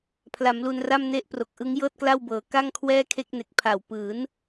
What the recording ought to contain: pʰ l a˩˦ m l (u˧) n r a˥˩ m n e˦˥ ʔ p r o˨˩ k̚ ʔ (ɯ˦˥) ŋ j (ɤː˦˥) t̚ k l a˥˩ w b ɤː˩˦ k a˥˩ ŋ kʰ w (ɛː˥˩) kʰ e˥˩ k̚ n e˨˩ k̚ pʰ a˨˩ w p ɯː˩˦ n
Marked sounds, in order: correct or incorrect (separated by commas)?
correct, correct, incorrect, correct